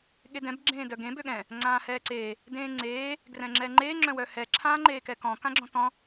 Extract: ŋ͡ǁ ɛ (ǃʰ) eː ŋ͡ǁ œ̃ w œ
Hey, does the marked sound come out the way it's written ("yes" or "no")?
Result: no